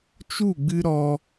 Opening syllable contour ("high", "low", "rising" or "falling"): falling